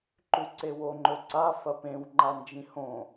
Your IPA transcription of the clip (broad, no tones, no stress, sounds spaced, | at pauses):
ǃ ʉ ǀ e w o ŋ͡ǃ ɵ ǀ a f ɐ p ẽ w ŋ͡ǃ a n d͡ʒ ĩ h õ